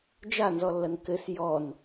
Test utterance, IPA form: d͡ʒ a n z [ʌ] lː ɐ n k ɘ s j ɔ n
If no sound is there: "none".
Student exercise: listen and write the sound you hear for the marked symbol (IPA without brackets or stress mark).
ɔ